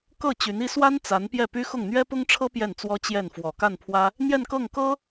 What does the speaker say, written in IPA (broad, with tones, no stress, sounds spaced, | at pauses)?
k ɤ˥˩ t͡ɕ y˧˥ n i˥ s w a˥ n t͡s a˧˥ n p j ɛ˥˩ p y˥ x ʊ˥˩ ŋ n̪ ɥ ɛ˥ p ʊ˥ ŋ ʈ͡ʂʰ ɤ˥ p j ɛ˥˩ n t͡s w ɔ˥ t͡ɕ j ɛ˥˩ n f w ɔ˨˩ k a˥˩ n pʰ w ä˥ | n̪ j ɛ˥˧ n k ɤ˥˩ ŋ k ɤ˥